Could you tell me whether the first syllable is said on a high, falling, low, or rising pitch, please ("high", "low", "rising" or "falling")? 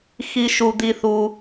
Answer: high